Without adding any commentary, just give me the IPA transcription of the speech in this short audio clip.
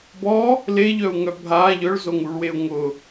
b ɔ | l e ʎ œ u̯ ŋ œ bʱ a ʎ œ ɭ z o ŋ u ɭ w e u̯ ŋ ʊ

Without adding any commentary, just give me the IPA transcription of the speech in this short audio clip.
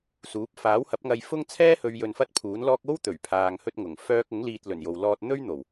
s uː˨˥ p̚ f aː˨˥ w h ɐ˨˥ p̚ ŋ ɐ˧ j f ʊ˥ ŋ t͡sʰ ɛː˥ h ɵ˨˧ ɥ j ɵ˨ n f ɐ˥ t̚ pʰ uː˨˥ n l ɔː˥ k̚ o˥ w t̪ ɵ˨˩ ɥ pʰ aː˧ ŋ h ɵ˥ t̚ ŋ ʊ˨˩ ŋ f œː˥ k̚ ʊ˨˥ ŋ l iː˧ t̚ l ɵ˨˩ n j o˨ w l ɔː˧ t̚ n̪ ɵ˥ ɥ n̪ o˨˩ w

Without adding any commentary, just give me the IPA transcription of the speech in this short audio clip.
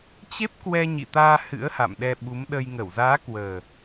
t͡ɕ e˦˥ p̚ k w ɛ˧ ɲ ḭ˧˨ t̪ aː˧ h ɨ̰˧˥ ə̯ h a̰˧˨ m ɗ ɛ˧ ɓ u˨˦ m ɗ ə˧ j ŋ ə˧˩ w z aː˨˦ k w əː˨˩

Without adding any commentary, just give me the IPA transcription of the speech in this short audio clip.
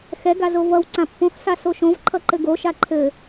x ɛ ɡ a z o v ʌ w ǀ ã pː õ x s a s o ʃ õ v ǃʰ ʌ ǃ ɘ ɡ o ʃ a ǃʰ ɘ

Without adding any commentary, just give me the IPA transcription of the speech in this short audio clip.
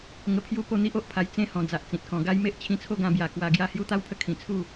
ŋ ə˧ pʰ j u˥˧ p o˥˧ n̪ i˦ ʔ o˨ ʔ pʰ a˧ j t͡s ẽ˥˧ h ɔ̃˨˩ d͡z a˨ ʔ t͡s ĩ˨ t̚ k ɔ̃˨˩ ɡ a˦ j m e˦ ʔ t͡ɕʰ ĩ˧ t͡sʰ o˥˧ ɡ ã˧ b j a˨˩ k w a˧ ɡ j a˥˧ h j u˦ t̪ a˦ w pʰ ə˧ kʰ ĩ˨˩ t͡sʰ u˥˧

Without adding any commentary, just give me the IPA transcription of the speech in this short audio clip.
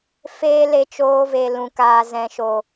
f eː˦ l e˧ t͡ʃ oː˧ v e˨ l ũ˨ k aː˨ z ɛ̃˨ ʃ o˨

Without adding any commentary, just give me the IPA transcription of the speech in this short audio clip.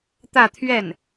t̪ ä˥˧ t̪ʰ ɥ ɛ˥˩ n

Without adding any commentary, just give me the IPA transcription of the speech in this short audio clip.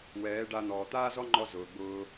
w ɛː˨˦ ɖ a˧ n̪ ɔː˨ t̪ aː˦ z ɔ˦ ŋ͡ǃ ɔ˧ z ʊː˨ ɡ͡b ʊː˧

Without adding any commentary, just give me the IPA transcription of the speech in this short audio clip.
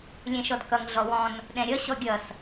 lʲ ɛ̃ ʃ ɔ d k ʌ ŋ ɮ ɔ w ɔ̃ n | ɗ ɛ̃ ɾʲ ʌ ɕ ɔ ɡʲ ʌ s

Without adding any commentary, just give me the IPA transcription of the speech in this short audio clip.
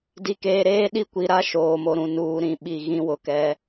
d i˨ k eː˨ ɾ eː˦ ɗ i˦ kʷ i˨ ɾ a˦ ʃ oː˨ m o˨ ɾ ũ˨ n uː˨ ɾ ĩ˨ ɓ i˨ ɣ ĩ˦ w ʊ˨ k ɛ˨˦

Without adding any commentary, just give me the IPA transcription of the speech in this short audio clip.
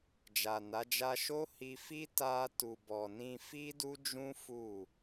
d͡ʒ a˨ n a˨˦ d͡ʒ a˦ ʃ o˦ h i˧ f i˦ t a˧ t u˨ b ɔ˨ n ĩ˧ f i˦ d u˦ d͡ʒ ũ˦ f u˦˨

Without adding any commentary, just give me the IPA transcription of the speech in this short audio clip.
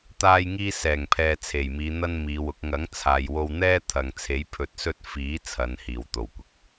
t̪ aː˧ j ŋ iː˧ s ɛː˨˩ ŋ pʰ ɛː˨ t͡sʰ e˨˩ j m iː˨˧ n̪ ɐ˥ n m iː˨˧ w ʊ˨˥ k̚ ŋ ɐ˨˥ ŋ t͡sʰ aː˨ j w o˧ w n̪ ɛː˥ t̪ʰ ɐ˨ ŋ t͡sʰ e˨˥ j pʰ ɵ˧ t̚ s ɵ˥ t̚ f iː˨˥ t͡sʰ ɐ˨˧ n h iː˨˩ w t̪ o˨˩ w kʷ ɪ˨ k̚

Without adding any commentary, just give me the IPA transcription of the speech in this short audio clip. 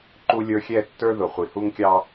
ǃ u˦ lʲ ə˞˦ xʲ ɛ˦˨ tː ə˞˦ ð ʊ˨ χʷ i˨ h u˦ ŋ kʲ ɑ˦

